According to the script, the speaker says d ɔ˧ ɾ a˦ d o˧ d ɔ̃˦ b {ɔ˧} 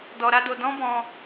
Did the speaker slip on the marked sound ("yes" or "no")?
yes